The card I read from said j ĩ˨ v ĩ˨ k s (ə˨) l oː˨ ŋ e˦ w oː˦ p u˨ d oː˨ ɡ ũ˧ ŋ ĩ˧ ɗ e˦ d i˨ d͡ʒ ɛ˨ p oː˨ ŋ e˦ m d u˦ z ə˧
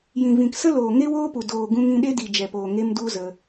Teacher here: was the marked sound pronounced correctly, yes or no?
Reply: no